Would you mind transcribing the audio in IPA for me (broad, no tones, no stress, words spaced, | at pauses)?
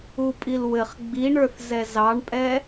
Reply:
upʼilwɘχ ɡ͡biɳə˞θzɛ zɑɳpʼɛ